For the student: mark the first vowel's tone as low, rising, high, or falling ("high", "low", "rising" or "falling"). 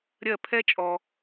falling